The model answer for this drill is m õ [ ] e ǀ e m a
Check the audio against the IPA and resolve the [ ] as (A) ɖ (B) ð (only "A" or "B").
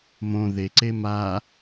B